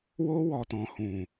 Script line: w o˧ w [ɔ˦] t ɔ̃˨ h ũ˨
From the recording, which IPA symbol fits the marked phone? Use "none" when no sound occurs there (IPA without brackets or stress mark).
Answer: ɔ˨